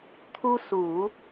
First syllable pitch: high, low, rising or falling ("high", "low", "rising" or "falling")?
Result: high